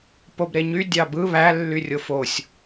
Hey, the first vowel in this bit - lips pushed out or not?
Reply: yes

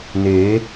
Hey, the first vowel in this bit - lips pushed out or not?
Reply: no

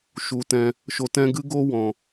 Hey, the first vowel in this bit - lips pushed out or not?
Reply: yes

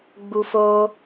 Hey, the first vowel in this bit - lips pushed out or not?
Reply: yes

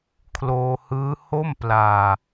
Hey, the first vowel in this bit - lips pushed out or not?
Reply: yes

